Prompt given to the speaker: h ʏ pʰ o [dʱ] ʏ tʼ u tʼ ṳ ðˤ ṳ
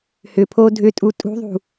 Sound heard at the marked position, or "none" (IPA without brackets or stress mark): dʱ